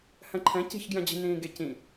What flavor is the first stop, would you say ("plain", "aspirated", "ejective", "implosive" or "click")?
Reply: click